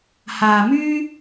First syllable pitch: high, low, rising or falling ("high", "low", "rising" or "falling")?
low